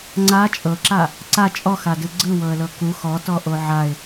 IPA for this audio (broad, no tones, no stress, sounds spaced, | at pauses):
ŋ͡ǀ a t͡ʃʼ ɤ ǁ a | ǀ a t͡ʃʼ ɔ x a d ɯ ɡ͡ǀ ɯ w ɤ ə̯ l ɤ k u x ɔ t ɔ ʔ o ʕ a ɪ̯